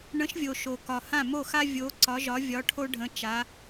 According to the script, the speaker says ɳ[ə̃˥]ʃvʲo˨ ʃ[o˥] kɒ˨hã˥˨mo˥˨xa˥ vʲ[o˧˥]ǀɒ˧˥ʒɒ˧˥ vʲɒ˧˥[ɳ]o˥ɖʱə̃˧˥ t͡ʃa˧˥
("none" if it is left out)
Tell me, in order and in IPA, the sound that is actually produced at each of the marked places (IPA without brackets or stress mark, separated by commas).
ə̃˧˥, o˨, o˧˥, ʈʰ